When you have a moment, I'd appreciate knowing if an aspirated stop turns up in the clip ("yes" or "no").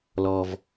no